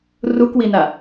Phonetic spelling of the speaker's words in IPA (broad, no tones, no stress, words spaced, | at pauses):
rukwina